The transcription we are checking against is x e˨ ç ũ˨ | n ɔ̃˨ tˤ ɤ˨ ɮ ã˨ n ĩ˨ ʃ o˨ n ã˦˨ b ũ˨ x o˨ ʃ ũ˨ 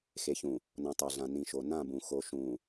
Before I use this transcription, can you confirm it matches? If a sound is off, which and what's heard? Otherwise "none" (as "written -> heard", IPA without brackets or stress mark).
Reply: none